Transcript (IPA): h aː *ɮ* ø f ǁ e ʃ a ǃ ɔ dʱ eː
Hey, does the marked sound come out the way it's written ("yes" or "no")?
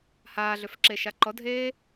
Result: yes